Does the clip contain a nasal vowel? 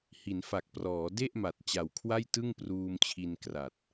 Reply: no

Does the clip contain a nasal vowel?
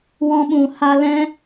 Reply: yes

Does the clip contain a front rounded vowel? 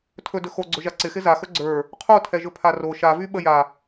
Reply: yes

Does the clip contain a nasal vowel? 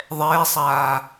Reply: no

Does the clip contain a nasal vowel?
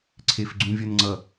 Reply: yes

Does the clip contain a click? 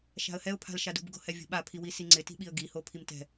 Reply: yes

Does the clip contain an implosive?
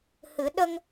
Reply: yes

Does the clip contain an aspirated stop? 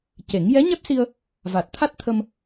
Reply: yes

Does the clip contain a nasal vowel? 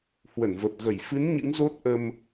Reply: no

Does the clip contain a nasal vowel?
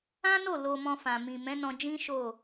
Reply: yes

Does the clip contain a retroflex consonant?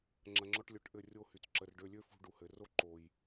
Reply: yes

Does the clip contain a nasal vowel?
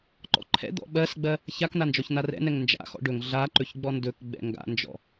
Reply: no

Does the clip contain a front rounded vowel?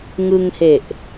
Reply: no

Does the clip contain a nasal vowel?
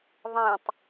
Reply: yes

